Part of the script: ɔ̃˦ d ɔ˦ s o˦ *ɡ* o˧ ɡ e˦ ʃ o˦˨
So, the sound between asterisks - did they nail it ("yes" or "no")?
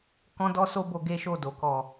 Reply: no